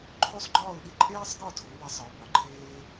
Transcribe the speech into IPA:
ǃʰ o˥ sˤ ɡ͡ǃ ɒː˥˧ ʊ̯ ɗ i˥ ǃʼ eː˥ sˤ ɡ ɒ˥˧ tʰ o˨˦ w e˨˦ sˤ ɒ˨˦ ʊ̯ b ɒ˨˦ ǃʰ eː˥

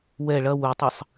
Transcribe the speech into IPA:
w ɛ ɭ ɐ w u tˤ ɨ sˤ

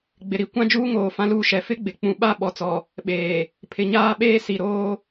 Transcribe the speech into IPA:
ɡ͡b ɪ˨ ɾ i˦˨ kʷ ã˦ d͡ʒ uː˦ ŋ oː˨ f ã˦ l uː˦ ʃ ɛ˨ f ɪ˦ ɡ͡b ɪ˨ k͡p ũ˨ ɓ a˦˨ ɓ ɔ˨ t͡s ɔ˨ | ɓ eː˨ | pʰ ɪ˨ ɲ aː˦ ɓ eː˦ s i˨ ɾ oː˦

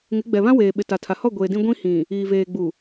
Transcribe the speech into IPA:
ŋ ɪ˨˦ ɡ͡b ɛ˨ β ã˦ w eː˨ ɓ ɪ˨ t a˨ tʰ a˨ h ɔ˦˨ ɡʷ eː˨ d ĩ˦ ɡʷ ĩ˦ h ĩ˨ | iː˨ v eː˨ ɡ͡b u˨

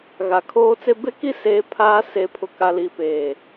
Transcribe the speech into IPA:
ɣ a˨ kʰ oː˦ t͡s e˦ b e˦ k i˦ s eː˦ pʰ aː˦ s e˨ pʰ ʊ˨ k a˨ l i˨ p eː˨

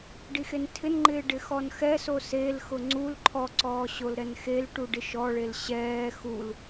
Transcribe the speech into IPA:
ɖ i x e n tʰ ɪ n ŋ͡ǃ ɪː ɖ ɪ x ɔ n x ɛ s o s e l x ʊ ŋ͡ǀ u l ǃʰ ɔ ǀ ɔː ɕ o l ɾ ɛ n x e l ʈ u ɖ ɪ ʃ ɔ ɭ e l ɕ ɛː x u l

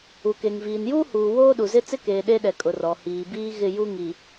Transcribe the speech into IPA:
u˨ k e˨ ŋ v iː˨ n j uː˦ h uː˨ w oː˦ ɗ u˨ z ɪ˦ t͡s ɪ˦ k eː˨ ɗ e˦ ɗ ɛ˨ kʼ ʊ˨ r ɔ˨ h iː˨ b iː˦ ɣ ɪ˦˨ j u˦ ŋ i˨

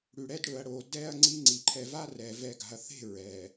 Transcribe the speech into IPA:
ɽ ʉ˨ ɽ ɛ˦ d ɽ ɵ˨ ɐ̯ ɽ o˨ d ɛ˦ ɐ̯ ŋ͡ǀ i˦ ŋ͡ǀ i˨ ǃʰ ɛ˨ v a˦ r ɛ˨ v ɛ˨ ɡ a̤˨ ɐ̯ θ e̤˦˨ ɹ ɛ˨

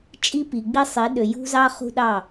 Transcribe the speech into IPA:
t͡ʃʼ i˦ p i˨ ɡ͡b i˦ sˤ i˨˦ ɗ ø˨ j ṳ˦ z ɑ˦ χ ṳ˦ ɗ ɑ˦˨

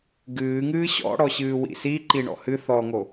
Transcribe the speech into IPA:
ɡ ɨː ŋ ɨː ɕ ɔ̰ ɽ ɔ ɕ ɨː w ḭ s i ǃ i ɳ ɔ̰ h ɨ θ ɔ ŋ o

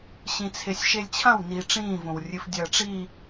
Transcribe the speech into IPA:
ɕ ĩ t͡sʰ e sʲ ʃ e lʲ t͡ɕʰ ɐ̃ w n iː ʈ͡ʂ ĩː v õ w rʲ ɨ f dʲ ɐː ʈ͡ʂ iː

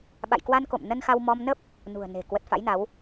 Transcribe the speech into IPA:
ɓ a̰˧˨ j k w a˧ n k o̰˧˨ m n ə˧ n x a˧ w m ɔ˧ m n ə˦˥ p̚ | n ṳ˨˩ ə̯ n e̤˨˩ k w ə˨˩ t̚ f a̰˧˥ j n a˨˦ w

